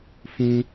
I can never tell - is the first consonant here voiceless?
yes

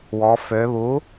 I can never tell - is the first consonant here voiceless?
no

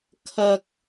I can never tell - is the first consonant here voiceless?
yes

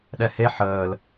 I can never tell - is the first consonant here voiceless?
no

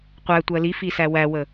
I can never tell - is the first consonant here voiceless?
yes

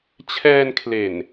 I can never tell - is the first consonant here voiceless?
yes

